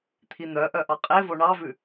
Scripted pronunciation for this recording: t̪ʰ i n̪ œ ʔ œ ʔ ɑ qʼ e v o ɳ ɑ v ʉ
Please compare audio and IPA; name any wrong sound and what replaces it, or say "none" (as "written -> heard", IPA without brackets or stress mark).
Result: none